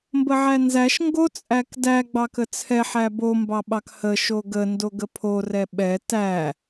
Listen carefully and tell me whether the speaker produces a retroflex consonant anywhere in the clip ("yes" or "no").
no